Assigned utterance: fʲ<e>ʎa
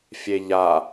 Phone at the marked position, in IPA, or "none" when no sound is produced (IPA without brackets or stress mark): e